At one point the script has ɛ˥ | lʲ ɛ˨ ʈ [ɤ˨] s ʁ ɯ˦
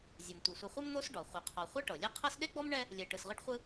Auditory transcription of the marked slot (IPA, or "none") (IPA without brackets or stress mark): ɯ˨